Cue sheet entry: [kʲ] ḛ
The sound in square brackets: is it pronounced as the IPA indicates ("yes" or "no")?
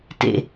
no